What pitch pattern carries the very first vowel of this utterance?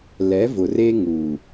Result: rising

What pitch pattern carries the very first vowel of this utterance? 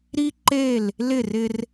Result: high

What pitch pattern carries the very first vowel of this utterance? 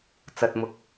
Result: low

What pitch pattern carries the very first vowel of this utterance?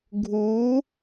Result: rising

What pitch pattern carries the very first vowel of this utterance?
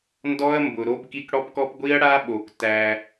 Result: high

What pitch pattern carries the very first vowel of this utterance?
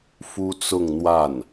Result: high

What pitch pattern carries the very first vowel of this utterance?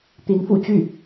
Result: rising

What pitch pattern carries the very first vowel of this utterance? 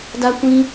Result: high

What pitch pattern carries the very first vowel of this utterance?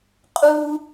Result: high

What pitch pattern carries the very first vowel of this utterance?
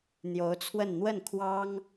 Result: rising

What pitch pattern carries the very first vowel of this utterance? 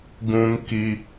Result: high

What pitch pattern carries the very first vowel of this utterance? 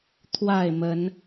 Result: falling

